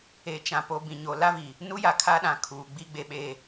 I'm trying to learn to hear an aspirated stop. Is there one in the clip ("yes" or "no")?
yes